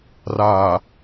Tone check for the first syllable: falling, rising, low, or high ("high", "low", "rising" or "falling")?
low